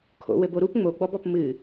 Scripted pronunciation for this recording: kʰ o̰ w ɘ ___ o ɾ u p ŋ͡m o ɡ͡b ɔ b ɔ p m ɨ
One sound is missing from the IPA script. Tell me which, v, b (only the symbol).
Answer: b